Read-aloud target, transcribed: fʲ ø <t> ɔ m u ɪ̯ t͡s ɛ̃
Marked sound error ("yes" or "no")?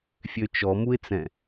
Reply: yes